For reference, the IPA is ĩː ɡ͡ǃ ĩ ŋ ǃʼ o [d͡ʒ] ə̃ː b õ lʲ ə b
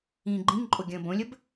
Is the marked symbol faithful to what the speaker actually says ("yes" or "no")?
no